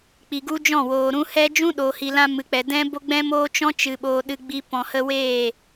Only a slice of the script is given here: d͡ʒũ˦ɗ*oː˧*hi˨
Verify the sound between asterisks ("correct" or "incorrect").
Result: incorrect